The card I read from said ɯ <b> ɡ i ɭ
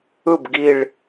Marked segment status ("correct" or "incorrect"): correct